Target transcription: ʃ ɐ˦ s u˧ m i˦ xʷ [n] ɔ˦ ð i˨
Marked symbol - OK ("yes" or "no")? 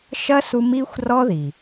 no